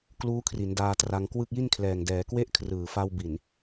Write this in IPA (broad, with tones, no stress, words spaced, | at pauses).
kluː˦˥kʰri˩˦n daː˧tra˧ŋkwɯ˥˩k̚ ji˥˩nkʰlɛː˨˩ŋdɛː˩˦ kwe˥˩ʔkʰrɯː˨˩fa˧wbi˨˩n